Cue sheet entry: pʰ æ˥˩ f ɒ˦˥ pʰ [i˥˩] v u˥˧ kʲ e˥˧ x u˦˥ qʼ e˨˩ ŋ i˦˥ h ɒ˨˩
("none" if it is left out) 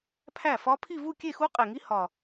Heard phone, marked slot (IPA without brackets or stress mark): i˥˧